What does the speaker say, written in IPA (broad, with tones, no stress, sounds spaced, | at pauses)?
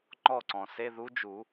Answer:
ŋ͡ǃ ɔ˥˩ ǀ ɔ̃˩ s e˧˥˧ ð u˧˥ d͡ʒ u˨˩˦